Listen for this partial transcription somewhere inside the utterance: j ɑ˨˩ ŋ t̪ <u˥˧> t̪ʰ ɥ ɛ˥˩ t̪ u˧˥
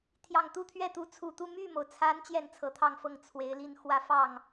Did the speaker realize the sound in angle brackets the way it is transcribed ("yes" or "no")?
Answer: yes